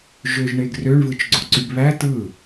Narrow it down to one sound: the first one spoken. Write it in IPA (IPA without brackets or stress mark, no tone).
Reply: ʒ